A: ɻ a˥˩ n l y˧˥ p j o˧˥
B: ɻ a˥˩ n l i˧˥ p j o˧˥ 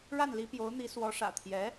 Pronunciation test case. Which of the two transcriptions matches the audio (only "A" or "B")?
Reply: B